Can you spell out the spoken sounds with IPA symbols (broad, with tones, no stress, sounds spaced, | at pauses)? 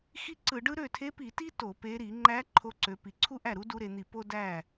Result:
x i˥ ǀ ɯ˧˩˧ ɖ ɯ˥ ɾ ø˥˩ tʰ e˧˥ p i˧˩˧ t i˥ t o˧˩˧ p e˧˥ ɾ i˧˩˧ ŋ͡ǃ æ˧˥ ǃʰ o˧˥ ǀ ø˩˧ p i˩˧ ǀʰ u˥ ʔ æ˥˩ ɾ u˧˥ d u˧˥ ɾ e˩˧ n̪ i˧˩˧ p o˥ d æ˥˩